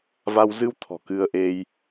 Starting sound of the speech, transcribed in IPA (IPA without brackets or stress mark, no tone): v